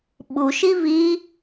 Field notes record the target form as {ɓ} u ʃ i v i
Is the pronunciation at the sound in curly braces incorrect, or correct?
correct